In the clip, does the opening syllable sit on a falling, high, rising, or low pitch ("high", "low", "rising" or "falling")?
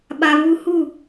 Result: high